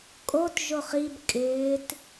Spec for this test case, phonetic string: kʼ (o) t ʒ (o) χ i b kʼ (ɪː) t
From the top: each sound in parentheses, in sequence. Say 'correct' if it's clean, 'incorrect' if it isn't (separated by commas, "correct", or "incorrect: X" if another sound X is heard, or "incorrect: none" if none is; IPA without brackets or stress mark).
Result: correct, correct, correct